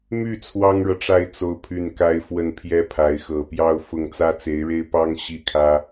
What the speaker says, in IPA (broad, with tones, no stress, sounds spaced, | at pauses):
m y˥˩ t͡sʰ w ɑ˥ ŋ ɻ ɤ˨ ʈ͡ʂ a˥˧ ɪ̯ t͡s o˥˧ ʊ̯ pʰ y˥˩ n k a˥ ɪ̯ f w ə˥˩ n pʰ j ɛ˥ pʰ a˧˥ ɪ̯ x ɤ˨˩ p j ɑ˥˧ ʊ̯ f ʊ˥˩ ŋ t͡s ä˥ t͡s e˧˥ ɪ̯ ɻ e˥ ɪ̯ p ɑ˥ ŋ ɕ i˥˩ kʰ ä˥